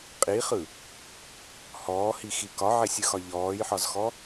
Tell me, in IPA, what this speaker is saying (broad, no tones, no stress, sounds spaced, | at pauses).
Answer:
qʼ i χ ɯ | h ɔː h i x i k ɒ ʕ e sʲ ɯ x ɒ ʎ ɔː j ħ ɒ z x ɔ